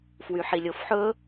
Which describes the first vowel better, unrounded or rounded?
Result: rounded